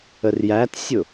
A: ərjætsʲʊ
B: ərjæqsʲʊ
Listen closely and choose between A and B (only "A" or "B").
A